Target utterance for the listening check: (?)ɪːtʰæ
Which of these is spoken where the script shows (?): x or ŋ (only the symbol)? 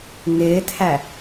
ŋ